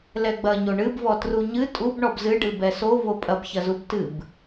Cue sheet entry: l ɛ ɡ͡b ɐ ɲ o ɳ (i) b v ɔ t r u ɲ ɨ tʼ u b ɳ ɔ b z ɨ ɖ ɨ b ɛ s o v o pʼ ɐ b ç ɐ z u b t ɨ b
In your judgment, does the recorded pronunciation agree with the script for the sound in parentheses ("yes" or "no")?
no